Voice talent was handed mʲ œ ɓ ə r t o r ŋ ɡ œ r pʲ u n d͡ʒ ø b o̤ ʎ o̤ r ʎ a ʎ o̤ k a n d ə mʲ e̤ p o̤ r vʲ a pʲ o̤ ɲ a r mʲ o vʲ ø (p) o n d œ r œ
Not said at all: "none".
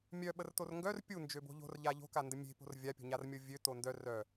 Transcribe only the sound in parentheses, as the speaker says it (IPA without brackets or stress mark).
t